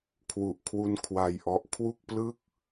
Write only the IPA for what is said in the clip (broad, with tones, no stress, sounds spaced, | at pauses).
kʰ w u˨˩ ʔ kʰ w u˧ n kʰ w a˧ j ʔ ɔ˦˥ ʔ kʰ w u˥˩ k̚ p l ɯ˥˩ k̚